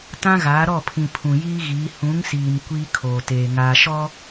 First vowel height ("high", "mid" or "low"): low